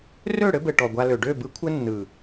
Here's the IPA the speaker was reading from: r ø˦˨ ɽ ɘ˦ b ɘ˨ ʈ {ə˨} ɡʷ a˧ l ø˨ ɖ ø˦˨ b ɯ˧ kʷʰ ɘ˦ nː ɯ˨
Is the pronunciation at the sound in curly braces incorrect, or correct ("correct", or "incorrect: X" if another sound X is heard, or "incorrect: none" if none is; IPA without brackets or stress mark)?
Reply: incorrect: ɔ˨